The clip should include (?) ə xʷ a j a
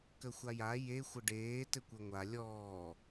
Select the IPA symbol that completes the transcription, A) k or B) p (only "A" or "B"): A